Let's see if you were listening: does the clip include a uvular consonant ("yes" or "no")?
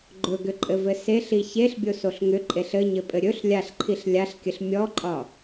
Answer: no